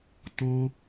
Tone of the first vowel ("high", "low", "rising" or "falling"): high